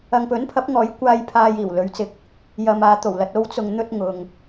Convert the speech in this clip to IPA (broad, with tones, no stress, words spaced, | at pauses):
ɐ˨ŋpɵ˨˥npʰɐ˨˥p̚ŋɔː˨˥j kʷaː˧j pʰaː˧jiː˨˩wlɵ˨˧ɥt͡sɪ˧k̚ | jɐ˧maː˧t̪o˨˩wlɐ˨˥t̚ o˥wt͡sʊ˧ŋ n̪ɵ˥t̚ŋʊ˨ŋ